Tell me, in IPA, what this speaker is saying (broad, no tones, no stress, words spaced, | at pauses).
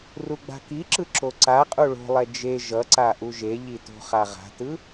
ruɡ͡ba̤kiǁɯ ǁoǀaqʼu ɭo̤lˠɛ d͡ʒe ʒʌ ǀaʔuʒeʎi to̤χaʁa̤tɯ